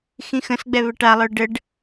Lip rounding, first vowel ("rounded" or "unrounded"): unrounded